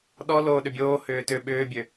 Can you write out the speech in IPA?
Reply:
ɗɔ loːɗʏbʲoː hʏːtʏ ɓʏːbʲø

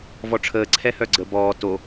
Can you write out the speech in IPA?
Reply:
vɔʈ͡ʂʰəː ǀʰɛhœɡ͡ǀə bɔː to

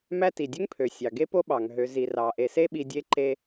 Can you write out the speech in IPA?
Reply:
mæ˦ti˩dʲø˥ŋ pʰø˩ sʲɑ˩ɡe˥po˥ ɓɑ˩ŋɦø˨ zi˩rɑ˩ ʔe˩se˦ɓi˨ dʲe˦ǃe˦

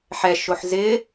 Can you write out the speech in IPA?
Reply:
ħɛʃoħ zɪ

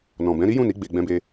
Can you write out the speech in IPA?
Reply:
nɔ̃˨bɛ̃˨˦ ɾi˦jũ˦˨ni˨˦ ɡ͡be˧ɡ͡bɛ̃˧be˧

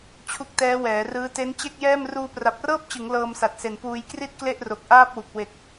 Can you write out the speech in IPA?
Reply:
t͡ɕʰu˦˥k̚tɛː˦˥wɛː˩˦rɯː˦˥ te˦˥n t͡ɕe˥˩k̚jɛː˥˩m ruː˧pra˨˩p̚rɤː˥˩p̚t͡ɕɯ˩˦ŋ lɤː˧msa˨˩t̚se˨˩n puː˧jkri˥˩t̚ kle˥˩ʔ ro˨˩k̚ʔaː˥˩p̚wu˨˩k̚ we˨˩k̚

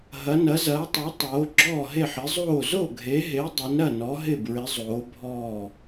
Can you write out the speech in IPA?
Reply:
ɦɐ˨˦ nɐ˨˦zɐː˨˦tˤo˨˦ tˤoː˨˦ɡ͡ǁɔː˥˨ɦe˥˨ħ ɪ˨˦zˤoː˥˨ zo˥˨ɡʱe˨˦ɦe˨˦ dˤɐ˨˦nɾɐ˥˨nɔ˨˦ ɦɪ˥˨bɹɪ˨˦ zˤoː˨˦bʱɔː˥˨

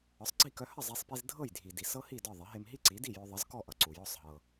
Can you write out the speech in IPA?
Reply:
ɒ˩˥sˤɡ͡ǀi˥˩kœ˧ hə˥˩zˤe˧sˤpi˧z dʱɤ˥˩jdʱi˩di˩ sɤ˥hi˥˩ dɒ˥˩ðˤə˩˥ ɦe˧mɦi˥ǀi˩˥di˥˩ jœ˧ðˤə˩˥z kɔ˥˩ʔʌ˩ ǀu˩jɔ˥˩sˤɦɤ˩

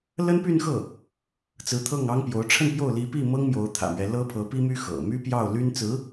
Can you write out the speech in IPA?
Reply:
lə˥npy˥˧nxɤ˥˩ | t͡sɹ̩˧˥t̪ʰɤ˥˩ŋɑ˥ŋpjo˧˥ʊ̯ ʈ͡ʂʰə˥˧npjo˥˩ʊ̯ li˧˥pi˥˩mɤ˥ŋ mjo˧˥ʊ̯t̪ʰä̰˨˩mɥɛ˦ lɤ˥pʰɤ˧˥pi˥my˥ xɤ̰˨˩ my˥pjɑ˥˩ʊ̯ly˥nt͡sɹ̩˧˥

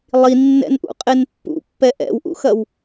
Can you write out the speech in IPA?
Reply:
lˠinːɛ̰nʔṵ qʼenpːṵpːɛ ʔɛ̰wʔṵxɐw

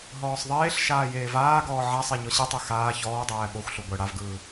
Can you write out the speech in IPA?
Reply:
ɦɔːsˤðˤeːɬʃaː jeːvaːɡɔː ʕasˤe ɲɔɕɯtˤe xaː çɔːdˤæː ɓoxʷɬu ɡʷɜ ɽavɡɯː

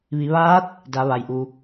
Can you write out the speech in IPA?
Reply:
ʋi˩˧ʋaː˧˥t̚ | da˩˧ ʋa˩jʔu˩

